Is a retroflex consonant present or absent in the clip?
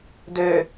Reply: absent